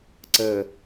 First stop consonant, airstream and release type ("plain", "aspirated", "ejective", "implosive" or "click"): click